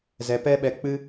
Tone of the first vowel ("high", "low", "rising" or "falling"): low